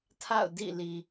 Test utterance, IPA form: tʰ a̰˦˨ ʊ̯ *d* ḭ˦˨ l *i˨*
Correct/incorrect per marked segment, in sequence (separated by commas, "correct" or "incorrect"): correct, correct